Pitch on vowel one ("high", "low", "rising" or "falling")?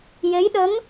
rising